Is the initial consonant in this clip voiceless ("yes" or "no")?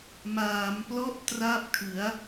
no